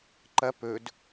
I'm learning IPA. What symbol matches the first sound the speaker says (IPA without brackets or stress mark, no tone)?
ǃ